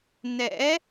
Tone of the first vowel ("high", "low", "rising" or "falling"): rising